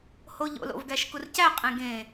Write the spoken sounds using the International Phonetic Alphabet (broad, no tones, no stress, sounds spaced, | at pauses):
h o ʎ o̰ l o̰ v ɡ æ ʃ k u r c æ qʼ ẽ ɡ ẽ